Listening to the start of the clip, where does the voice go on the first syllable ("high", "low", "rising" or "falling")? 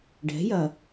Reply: rising